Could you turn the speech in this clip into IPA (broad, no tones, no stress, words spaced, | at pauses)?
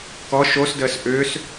kɔ ʃosdəːs ʔʏːs